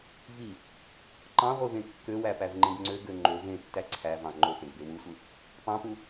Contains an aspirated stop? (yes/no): yes